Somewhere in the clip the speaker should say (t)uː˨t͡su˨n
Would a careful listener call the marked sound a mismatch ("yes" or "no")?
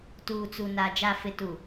no